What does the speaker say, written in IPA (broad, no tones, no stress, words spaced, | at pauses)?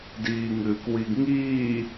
diːŋɨːkwiɡŋiː